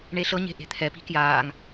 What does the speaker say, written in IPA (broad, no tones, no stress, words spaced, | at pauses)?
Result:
ɳeɬɤɲe̤ ʔe̤t̪ʰɛpi̤ kjaːŋ